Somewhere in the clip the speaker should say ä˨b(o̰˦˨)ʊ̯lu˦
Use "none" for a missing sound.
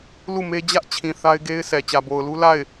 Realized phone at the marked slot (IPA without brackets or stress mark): o˨